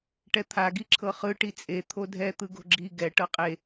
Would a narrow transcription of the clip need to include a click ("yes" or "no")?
yes